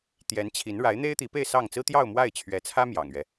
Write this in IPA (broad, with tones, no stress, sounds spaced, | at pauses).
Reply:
t̪ j ɛ˧˥ n t͡ɕʰ i˧˥ n ɻ a˧˥ ɪ̯ n̪ e˥ ɪ̯ t̪ i˧˥ p e˥˧ ɪ̯ s ɑ˥˩ ŋ t͡s ɹ̩˥ t̪ j ɑ˥˧ ʊ̯ m w a˥˩ ɪ̯ t͡ɕʰ ɥ ɛ˧˥ t͡sʰ ä˥ m j ɑ̰˨˩ ŋ ɥ ɛ˦